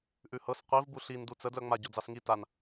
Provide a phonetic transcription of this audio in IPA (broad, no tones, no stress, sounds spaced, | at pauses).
ʔ ʉ h ɤ s qʷ i v b u ɬ i n d u t͡s ə d l œ ŋ͡m a ɟ o d͡z ɑ s ŋ i t a n